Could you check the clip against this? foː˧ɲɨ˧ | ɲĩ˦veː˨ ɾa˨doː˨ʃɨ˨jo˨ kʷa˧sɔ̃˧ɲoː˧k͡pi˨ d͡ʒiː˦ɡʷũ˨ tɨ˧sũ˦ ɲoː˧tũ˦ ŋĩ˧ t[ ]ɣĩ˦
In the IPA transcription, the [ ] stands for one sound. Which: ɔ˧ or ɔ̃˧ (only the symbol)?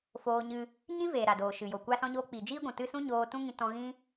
ɔ̃˧